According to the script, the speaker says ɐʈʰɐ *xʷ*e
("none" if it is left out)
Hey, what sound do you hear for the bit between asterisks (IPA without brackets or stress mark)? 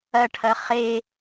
χ